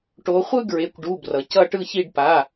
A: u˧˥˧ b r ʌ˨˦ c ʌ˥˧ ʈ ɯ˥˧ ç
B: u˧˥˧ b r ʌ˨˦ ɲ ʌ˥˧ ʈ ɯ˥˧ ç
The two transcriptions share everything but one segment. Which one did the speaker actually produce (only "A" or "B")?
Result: A